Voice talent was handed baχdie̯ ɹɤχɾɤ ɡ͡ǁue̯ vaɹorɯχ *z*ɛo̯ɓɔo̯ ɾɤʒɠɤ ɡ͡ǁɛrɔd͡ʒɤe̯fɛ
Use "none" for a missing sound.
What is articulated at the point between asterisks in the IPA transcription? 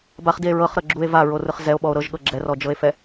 z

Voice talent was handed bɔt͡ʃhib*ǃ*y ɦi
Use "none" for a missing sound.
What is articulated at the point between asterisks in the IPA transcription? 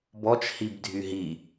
dʱ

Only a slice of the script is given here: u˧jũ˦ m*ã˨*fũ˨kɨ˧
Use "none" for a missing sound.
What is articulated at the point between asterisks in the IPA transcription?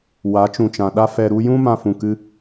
ã˧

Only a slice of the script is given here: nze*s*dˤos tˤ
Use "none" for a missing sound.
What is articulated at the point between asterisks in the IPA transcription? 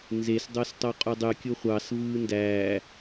s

